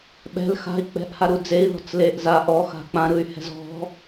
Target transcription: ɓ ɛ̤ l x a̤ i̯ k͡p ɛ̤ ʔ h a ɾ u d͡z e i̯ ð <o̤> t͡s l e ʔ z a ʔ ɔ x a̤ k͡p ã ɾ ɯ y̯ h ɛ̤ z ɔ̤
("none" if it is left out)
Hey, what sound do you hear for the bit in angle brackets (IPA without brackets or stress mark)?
ɔ̤